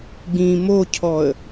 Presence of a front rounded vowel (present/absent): absent